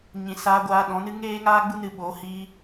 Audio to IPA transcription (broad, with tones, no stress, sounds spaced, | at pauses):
ɲ ĩ˨ s aː˧ ɡʷ aː˧ ɗ ɔ̃˨˦ n ɨ˦ ŋ eː˦ ŋ aː˦ ɡ͡b u˦ n ɨ˧ ɓ oː˨˦ h iː˧